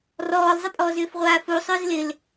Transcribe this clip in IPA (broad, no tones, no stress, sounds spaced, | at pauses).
r ɔː l zˤ ɪ pʼ ɔː z ʏː f ʁʷ aː f u sˤ ʏː z l ɪ l